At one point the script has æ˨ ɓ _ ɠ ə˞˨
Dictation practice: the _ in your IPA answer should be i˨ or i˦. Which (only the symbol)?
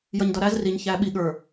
i˨